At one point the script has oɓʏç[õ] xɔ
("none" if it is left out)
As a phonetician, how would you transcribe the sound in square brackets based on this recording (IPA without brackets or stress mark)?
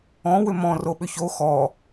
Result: o